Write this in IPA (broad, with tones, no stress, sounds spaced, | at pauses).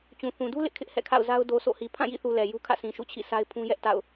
t͡ɕ ũ˨ θ ũ˨ d u˦ l ɪ˦ ʔ kʰ ɪ˦ ʔ h ɛ̰˦˨ kʰ a̰˦˨ ʊ̯ z a˦ ʊ̯ d o˨ s o̰˦˨ h i˨ pʰ ã˦˨ j ḭ˦˨ θ u˨ l ɛ˨ j u˦ kʰ ä̰˦˨ s ĩ˨ ʃ ṵ˦˨ t͡ɕʰ ḭ˦˨ s a˦ ɪ̯ pʰ ũ˦ j ɛ˦ ʔ t a̰˦˨ ʊ̯